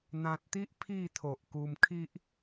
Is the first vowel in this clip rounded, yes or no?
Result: no